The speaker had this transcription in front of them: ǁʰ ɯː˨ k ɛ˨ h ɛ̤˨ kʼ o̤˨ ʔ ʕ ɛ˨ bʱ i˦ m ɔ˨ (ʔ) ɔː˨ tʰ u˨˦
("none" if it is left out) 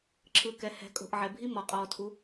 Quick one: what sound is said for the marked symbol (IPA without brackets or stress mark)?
qʼ